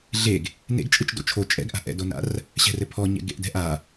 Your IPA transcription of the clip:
ɮ e ɡ | n ḛ ɡ t͡ʃʼ ɯ t͡ʃ d o̰ t͡ʃʰ o t͡ʃʼ ɛ̰ ɡ ʔ a̤ ʔ ɛ̰ d o n a̰ r | ɕ ɛ̤ r ɘ pʰ ɔ ɲ ɛ̰ ɡ ḛ ʔ d ɛ̤ ʔ a

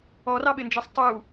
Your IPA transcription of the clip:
ɔ r ɑ ɓ ɪ n d͡ʒ ʌ sˤ tˤ u

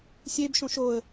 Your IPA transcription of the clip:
sʲ e b ʃ õ ʃ o ə̯

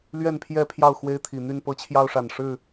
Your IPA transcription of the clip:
l ɥ ɛ˥˨ n pʰ j ɛ˥˨ pʰ j ɑ˥˨ ʊ̯ x w e˦ ɪ̯ t̪ʰ i˨˩ n̪ y˥˨ n p ɤ˦ t͡ɕʰ j ɑ˦ ʊ̯ ʂ a˨˩ n ʂ ɻ̩˥˨

